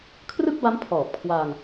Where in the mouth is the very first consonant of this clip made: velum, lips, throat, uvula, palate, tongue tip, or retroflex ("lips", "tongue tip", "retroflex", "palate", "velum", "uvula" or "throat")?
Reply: velum